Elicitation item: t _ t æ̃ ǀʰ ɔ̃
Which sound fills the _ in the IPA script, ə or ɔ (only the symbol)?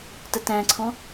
ə